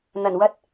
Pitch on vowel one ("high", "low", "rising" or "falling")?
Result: low